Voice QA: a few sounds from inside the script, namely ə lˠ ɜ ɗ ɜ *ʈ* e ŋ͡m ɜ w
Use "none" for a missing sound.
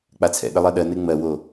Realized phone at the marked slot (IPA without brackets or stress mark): n